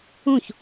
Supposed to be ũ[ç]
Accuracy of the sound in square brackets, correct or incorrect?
correct